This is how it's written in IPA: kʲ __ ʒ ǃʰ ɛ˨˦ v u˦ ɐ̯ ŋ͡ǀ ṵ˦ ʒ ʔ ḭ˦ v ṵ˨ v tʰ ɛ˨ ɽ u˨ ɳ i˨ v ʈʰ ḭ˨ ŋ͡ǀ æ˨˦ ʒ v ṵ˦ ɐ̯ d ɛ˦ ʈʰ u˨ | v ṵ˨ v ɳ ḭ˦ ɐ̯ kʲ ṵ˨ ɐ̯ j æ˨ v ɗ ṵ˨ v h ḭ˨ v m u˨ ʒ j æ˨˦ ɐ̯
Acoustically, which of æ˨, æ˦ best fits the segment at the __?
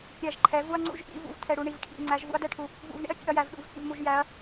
æ˨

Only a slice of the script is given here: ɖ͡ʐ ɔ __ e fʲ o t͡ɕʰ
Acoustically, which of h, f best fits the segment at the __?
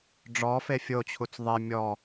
f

